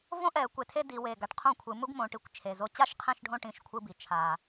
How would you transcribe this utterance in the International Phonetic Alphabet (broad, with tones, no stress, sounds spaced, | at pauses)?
v õ˥ ʔ ɛ˧˩˧ kʷ e˧˩˧ tʰ e˥ d i˩˧ w e˨˩ ɡ a˩˧ ʈ qʰ õ˥˨ kʷʰ ɯ˩˧ m u˥ ɡ m õ˩˧ ʈ i˩˧ kʷ t͡ʃʰ e˨˩ z o˧˥˧ t͡ɕ a˥ ʃ qʰ ɛ̃˥˨ ʃ ɖʱ õ˥˨ ʈ ĩ˥˨ ʃ kʷʰ ɯ˥ b i˩˧ t͡ʃʰ a˨˩